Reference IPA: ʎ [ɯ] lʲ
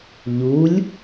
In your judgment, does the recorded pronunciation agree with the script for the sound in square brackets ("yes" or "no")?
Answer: no